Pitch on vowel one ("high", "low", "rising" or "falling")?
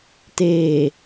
low